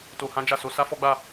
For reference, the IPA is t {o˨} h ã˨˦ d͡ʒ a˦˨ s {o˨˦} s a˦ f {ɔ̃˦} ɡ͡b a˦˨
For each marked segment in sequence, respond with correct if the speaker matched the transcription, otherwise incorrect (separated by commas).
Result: correct, correct, incorrect